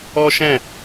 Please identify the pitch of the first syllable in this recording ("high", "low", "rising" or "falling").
high